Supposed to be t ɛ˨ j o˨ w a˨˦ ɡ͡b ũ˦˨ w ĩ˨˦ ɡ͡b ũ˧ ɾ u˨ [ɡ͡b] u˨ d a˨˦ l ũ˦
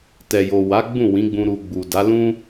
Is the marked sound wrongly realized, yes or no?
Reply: no